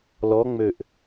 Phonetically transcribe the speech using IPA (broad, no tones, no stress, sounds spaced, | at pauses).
l ɔ ŋ͡m ø ʔ